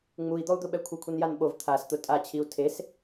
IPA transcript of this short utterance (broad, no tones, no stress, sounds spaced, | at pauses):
ŋ͡m u i̯ d̪ ɔ u̯ d̪ ʊ ɓ ɛ kʷʰ e kʷʰ i n j a n ɓ o v t̪ʰ a s t̪ ʊ tʼ a t͡ɕʰ i u̯ tʰ e s